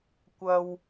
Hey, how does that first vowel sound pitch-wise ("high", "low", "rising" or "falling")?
high